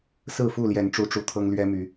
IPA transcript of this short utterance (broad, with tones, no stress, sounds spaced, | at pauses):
s ɹ̩˥˨ f u˥˨ l j ɛ˨˦ n ʈ͡ʂ u˨˦ ʈ͡ʂ u˨˩ t̪ʰ ɤ˦ ŋ l ɥ ɛ˦ m y˨˦